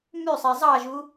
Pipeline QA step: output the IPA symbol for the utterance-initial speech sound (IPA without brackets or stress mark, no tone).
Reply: m